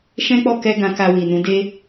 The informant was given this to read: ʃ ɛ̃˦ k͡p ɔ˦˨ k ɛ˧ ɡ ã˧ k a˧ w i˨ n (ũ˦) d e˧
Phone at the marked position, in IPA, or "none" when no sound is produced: ũ˨˦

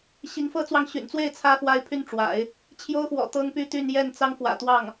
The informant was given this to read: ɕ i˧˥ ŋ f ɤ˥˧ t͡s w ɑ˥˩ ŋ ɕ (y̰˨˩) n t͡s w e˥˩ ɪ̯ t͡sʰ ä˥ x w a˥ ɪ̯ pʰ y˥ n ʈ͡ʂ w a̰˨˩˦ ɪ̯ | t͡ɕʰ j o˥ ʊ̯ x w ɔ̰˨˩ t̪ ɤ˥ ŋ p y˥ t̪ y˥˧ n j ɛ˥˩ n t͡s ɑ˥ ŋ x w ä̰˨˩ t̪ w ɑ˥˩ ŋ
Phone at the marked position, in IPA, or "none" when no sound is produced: y̰˨˩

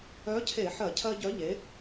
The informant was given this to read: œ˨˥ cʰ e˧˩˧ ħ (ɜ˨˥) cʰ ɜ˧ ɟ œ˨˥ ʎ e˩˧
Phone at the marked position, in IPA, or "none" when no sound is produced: ɜ˧˩˧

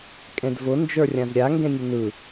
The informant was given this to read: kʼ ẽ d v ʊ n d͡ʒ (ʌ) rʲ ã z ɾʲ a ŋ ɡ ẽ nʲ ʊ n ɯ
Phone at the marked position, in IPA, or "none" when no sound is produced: ə˞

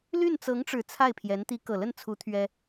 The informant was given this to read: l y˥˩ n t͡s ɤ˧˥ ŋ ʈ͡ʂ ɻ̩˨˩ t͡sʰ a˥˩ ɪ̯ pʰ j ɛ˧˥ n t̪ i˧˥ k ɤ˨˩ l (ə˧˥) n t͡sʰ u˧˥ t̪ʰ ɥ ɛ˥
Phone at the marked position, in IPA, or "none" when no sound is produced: ə˥˩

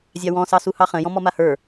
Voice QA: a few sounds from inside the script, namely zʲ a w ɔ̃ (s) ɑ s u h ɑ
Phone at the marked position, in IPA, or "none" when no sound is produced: s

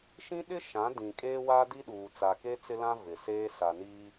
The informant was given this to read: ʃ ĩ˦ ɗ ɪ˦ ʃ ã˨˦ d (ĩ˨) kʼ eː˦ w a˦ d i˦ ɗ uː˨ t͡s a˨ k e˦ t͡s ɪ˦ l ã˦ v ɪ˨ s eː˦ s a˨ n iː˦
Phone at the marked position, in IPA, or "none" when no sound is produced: ĩ˨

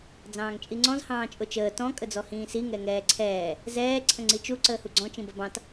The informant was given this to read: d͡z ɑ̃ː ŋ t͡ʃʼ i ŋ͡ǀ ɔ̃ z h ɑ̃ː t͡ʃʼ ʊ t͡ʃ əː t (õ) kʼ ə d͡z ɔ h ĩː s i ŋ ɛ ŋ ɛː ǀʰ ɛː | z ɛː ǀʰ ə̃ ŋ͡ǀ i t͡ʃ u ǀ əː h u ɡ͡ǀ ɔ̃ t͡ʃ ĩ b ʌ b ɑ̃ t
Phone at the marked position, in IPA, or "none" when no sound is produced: ɔ̃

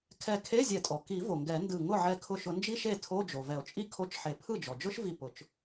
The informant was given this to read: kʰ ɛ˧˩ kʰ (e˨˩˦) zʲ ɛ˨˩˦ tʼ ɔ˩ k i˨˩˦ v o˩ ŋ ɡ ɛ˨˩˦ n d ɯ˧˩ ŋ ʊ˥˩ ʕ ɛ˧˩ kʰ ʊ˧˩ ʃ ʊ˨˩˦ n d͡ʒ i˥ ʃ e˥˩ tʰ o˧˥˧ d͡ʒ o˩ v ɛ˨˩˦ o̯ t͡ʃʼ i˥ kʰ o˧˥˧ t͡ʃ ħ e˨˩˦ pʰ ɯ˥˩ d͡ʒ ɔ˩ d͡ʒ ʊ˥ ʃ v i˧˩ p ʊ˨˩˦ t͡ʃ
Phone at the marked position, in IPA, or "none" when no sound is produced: e˧˥˧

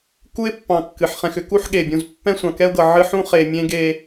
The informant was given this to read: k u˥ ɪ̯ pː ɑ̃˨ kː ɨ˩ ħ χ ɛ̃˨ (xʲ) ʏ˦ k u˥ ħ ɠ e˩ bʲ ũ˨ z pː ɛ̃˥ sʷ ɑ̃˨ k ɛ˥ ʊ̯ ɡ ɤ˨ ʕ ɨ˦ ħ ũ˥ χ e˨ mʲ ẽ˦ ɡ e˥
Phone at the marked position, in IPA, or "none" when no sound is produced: x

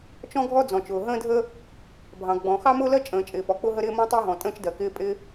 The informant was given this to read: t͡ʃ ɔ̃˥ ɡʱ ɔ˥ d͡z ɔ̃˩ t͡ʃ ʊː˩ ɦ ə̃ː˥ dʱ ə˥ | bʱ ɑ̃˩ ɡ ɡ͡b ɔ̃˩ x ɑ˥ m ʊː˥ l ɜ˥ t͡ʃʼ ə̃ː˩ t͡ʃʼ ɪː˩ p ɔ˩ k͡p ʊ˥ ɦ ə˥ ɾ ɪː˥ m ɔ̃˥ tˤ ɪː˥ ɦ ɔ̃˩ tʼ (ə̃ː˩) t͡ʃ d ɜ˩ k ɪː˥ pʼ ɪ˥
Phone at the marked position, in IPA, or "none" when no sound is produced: ə̃ː˥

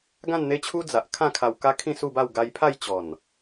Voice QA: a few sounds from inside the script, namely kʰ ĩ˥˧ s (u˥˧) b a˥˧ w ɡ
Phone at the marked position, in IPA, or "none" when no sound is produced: u˥˧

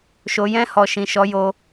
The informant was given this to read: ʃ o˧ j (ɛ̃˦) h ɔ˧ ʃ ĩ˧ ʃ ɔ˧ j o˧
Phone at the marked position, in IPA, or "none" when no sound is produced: ɛ̃˦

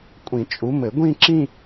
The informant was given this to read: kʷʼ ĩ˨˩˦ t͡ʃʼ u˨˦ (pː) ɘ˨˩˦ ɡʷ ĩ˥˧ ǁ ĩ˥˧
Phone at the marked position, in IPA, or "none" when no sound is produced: m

